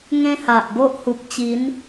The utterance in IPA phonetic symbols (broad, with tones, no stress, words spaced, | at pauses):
ŋẽ˦ha˨ʔbo˦ʔ hu˨p̚t͡ɕi˨˦n